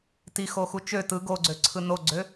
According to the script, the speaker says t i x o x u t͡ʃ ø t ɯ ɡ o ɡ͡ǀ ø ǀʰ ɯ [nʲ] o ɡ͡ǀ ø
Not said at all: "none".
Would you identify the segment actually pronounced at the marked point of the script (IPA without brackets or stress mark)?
n